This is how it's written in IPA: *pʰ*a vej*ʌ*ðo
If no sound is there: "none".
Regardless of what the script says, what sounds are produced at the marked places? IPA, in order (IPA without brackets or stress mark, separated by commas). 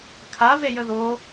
kʰ, ə